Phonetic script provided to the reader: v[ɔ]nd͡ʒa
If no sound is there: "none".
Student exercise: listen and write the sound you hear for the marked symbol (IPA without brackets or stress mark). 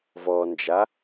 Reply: ɔ